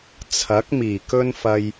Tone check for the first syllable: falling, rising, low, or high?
rising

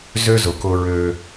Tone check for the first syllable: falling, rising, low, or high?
high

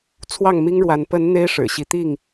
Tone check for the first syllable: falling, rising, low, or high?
falling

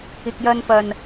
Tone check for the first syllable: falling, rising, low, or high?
low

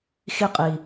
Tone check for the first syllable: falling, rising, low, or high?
falling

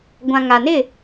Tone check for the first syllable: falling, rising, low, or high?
low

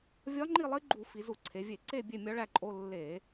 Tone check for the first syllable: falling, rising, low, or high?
rising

